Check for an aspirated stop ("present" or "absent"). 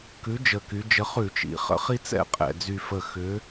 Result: absent